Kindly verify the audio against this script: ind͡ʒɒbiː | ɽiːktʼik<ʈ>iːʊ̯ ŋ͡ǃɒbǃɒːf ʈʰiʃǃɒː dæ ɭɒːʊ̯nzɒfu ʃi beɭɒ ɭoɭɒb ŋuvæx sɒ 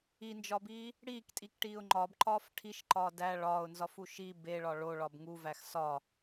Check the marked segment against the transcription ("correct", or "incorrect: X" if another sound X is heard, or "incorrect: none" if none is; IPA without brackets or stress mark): correct